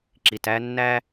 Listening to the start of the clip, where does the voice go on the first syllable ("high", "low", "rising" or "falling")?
low